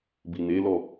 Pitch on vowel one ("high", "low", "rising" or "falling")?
low